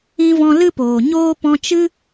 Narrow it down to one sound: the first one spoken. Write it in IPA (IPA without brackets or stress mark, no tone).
ĩ